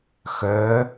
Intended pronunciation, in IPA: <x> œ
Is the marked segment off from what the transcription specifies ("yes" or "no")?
no